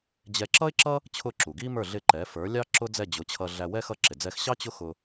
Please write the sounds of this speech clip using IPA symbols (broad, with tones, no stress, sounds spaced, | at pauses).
d͡ʑ ɛ˧ ǁ ʌ˥ ɪ̯ ǁ ʌ˥ | t͡ɕʰ ʊ˥˩ ǁ u˩ ɡ i˥ m ə˞˥˩ ɮ ɪ˥˩ ǃ ɛ˩˥ f ə˞˩˥ lʲ ɑ˥ ǁ ʊ˥ d͡z ɛ˥˩ d͡ʑ ʊ˩˥ t͡ɕʰ ʌ˧ ɮ æ˧ w ɛ˥ x ʌ˥˩ ǁ ɪ˩ d͡z ɛ˧ x ɕ ɑ˥ t͡ɕ ʊ˥ x ʊ˧